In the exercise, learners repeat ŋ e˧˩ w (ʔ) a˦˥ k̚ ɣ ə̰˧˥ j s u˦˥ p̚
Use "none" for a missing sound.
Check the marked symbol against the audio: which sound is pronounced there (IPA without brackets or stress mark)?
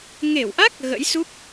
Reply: ʔ